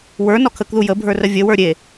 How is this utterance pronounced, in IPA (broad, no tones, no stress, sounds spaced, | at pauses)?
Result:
w ə˞ n ɔ kʰ ə k ð u j ə bʱ ə˞ r ə vʲ ə w ə˞ ɾʲ e